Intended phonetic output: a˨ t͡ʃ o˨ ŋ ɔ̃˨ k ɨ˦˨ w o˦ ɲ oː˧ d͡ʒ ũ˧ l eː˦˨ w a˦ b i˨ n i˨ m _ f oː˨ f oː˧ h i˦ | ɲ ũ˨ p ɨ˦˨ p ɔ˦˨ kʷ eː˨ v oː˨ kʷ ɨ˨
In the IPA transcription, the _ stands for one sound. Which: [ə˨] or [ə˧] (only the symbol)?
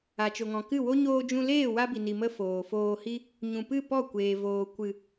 ə˧